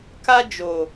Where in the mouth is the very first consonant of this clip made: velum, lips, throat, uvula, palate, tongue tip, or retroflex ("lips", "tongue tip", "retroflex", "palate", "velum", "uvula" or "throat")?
velum